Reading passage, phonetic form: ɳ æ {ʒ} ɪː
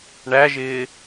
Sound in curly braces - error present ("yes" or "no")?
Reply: no